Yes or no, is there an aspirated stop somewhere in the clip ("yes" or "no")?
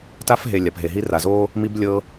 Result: no